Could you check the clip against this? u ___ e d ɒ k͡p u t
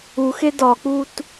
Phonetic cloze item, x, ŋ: x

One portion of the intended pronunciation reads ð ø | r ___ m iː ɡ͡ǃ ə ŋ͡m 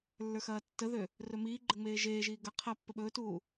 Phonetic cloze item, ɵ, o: ɵ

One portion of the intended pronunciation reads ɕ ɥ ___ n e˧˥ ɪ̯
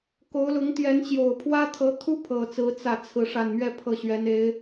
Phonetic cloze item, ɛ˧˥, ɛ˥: ɛ˧˥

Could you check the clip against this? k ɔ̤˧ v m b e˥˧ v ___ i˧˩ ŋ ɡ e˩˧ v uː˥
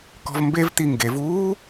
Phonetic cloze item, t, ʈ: t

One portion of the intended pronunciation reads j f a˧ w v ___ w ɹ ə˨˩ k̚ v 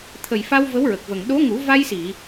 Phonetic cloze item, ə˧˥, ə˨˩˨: ə˧˥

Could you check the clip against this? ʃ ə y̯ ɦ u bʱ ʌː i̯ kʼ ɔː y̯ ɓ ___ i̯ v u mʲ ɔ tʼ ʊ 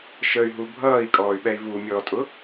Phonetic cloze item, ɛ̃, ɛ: ɛ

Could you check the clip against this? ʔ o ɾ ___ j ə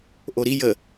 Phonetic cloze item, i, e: i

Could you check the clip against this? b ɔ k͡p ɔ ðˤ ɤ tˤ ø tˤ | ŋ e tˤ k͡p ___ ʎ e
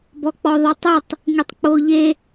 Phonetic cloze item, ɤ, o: o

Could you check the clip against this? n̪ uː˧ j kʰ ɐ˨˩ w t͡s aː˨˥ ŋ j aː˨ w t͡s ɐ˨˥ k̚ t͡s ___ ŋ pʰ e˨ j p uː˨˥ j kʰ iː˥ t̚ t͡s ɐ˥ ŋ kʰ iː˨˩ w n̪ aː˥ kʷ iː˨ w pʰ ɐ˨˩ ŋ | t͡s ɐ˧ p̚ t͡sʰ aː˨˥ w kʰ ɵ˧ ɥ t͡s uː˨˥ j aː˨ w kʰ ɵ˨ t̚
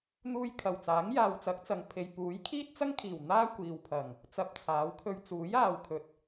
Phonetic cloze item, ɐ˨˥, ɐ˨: ɐ˨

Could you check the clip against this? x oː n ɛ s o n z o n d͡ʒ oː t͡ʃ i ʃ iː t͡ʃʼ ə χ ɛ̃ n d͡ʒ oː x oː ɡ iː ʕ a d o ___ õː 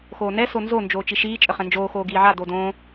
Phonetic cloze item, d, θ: d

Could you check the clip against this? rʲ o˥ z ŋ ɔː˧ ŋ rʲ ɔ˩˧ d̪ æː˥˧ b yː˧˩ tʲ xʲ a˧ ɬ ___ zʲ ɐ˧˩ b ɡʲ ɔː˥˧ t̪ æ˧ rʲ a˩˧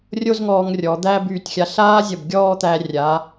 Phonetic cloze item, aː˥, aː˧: aː˥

